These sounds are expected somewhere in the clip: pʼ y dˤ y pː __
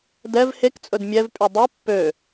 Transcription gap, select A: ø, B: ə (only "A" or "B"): A